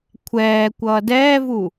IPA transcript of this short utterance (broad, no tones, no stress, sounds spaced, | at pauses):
kʷʰ ɛː kʷ ʌː d ɛː v u